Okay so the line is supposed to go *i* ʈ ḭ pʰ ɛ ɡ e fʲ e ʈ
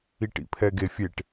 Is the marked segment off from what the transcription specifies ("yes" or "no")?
no